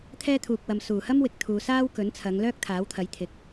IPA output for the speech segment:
t̪ʰɛː˥t̪ʰuː˨k̚wɐ˨m suː˨˩hɐ˥m wɪ˨k̚ t̪ʰuː˨ saː˥wkɵ˨˥nt͡sʰɐ˨˧ŋ lœː˥k̚t̪ʰaː˨˥wt̪ʰɐ˨˥j t̪ʰɪ˨˥k̚

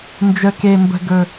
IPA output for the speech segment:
nd͡ʒə˨˩ke˨˩mbə̤˨˩ ɡɵ˨˩

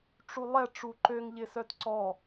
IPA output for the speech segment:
ʈ͡ʂulˠɛʈ͡ʂu ǃøŋʎɪsœt ǀɔ

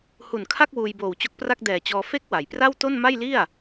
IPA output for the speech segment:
hu˨˩nkʰa˥˩k̚ wuː˧jboː˨˩wt͡ɕo˦˥k̚pra˥˩k̚ dɛː˨˩t͡ɕɔː˧ fe˦˥k̚wa˩˦j pra˥˩wto˥˩n ma˥˩jli˥˩a̯

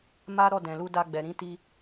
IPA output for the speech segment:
ma˦ɾɔ˦˨ dɛ̃˨lu˧ da˧ɡ͡bɛ˨ ɾĩ˨˦ti˧

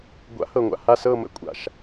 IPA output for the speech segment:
ɡʷa̰˨˥hɤ˨˩ŋʷa̰˨˩ ha˦˨sɤ˦˨mə̰˨˥ kʷʼa̰˨˩ʃ

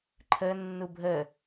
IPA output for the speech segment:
ǃʰə nːubʱə

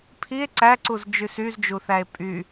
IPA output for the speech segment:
pʰie̯ ǀæǀuz d͡ʒysyzd͡ʒuθæe̯ pʼy

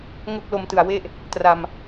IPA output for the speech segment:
ŋo˥˩k̚lo˧mtɯ˨˩a̯we˥˩ʔ | tra˧m

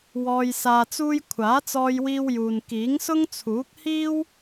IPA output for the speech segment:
wɔː˧jsaː˧t͡suː˥j kʷʰaː˨˥t͡sɔː˧jwiː˧wjuː˨n kiː˨˥ŋsʊ˥ŋt͡sʰuː˨˥k̚hiː˥w

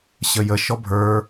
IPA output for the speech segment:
ɕəjə ʃɔbʱə˞

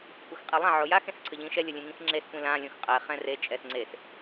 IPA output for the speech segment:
kʷaxqʼelˠã ʕojax ẽsǀʰəʎĩʃɛ lʲəlʲẽŋĩxŋ͡ǁes kʷĩlã lʲõxqʼɛ χɛ̃re t͡ʃʼɛsŋ͡ǀes

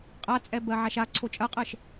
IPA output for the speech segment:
qʼat͡sʼɛ bɜʕaʃa ǀʰot͡ʃʼɐqʼɜʃ

